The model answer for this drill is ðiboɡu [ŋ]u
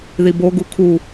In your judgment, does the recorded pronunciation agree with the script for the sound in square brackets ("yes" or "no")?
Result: no